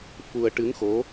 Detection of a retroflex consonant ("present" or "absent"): present